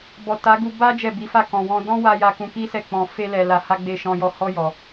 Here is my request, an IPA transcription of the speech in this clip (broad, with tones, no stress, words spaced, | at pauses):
bɔ˨ta˨˦ɡu˧ ba˦ d͡ʒɛ˦˨bi˨˦fa˦˨ kɔ̃˨wɔ̃˧dɔ̃˦ wa˦ ja˧ kũ˧ki˦sɛ˦˨k͡pɔ̃˧ fe˦lɛ˧la˧ ha˦ɡ͡be˦˨ ʃɔ̃˧jɔ˧ hɔ˦ jɔ˧